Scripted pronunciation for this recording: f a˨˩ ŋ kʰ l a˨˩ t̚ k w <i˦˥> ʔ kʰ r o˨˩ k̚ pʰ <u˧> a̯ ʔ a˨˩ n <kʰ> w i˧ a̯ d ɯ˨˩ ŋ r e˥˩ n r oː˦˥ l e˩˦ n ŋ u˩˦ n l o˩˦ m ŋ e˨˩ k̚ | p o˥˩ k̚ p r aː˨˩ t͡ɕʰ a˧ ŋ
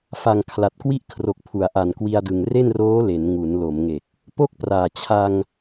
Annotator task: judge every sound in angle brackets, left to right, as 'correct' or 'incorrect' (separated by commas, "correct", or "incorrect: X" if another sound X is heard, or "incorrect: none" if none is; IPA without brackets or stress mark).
correct, incorrect: u˩˦, incorrect: k